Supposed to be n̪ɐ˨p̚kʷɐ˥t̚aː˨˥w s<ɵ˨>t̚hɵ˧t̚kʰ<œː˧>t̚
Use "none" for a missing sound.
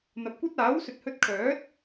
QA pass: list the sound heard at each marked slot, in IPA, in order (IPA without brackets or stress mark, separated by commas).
ɵ˨, œː˨˥